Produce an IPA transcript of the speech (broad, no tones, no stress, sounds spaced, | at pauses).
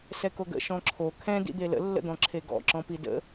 s ɛ k o ɡ ə̰ ʃ ɔ̃ ǁʰ o kʰ ɛ̃ d ḭ d̪ e l ə̰ lː ə̰ d̪ ɔ̃ ǁʰ e ɡ ɔ̰ ǁ ɔ̃ p i d ə̰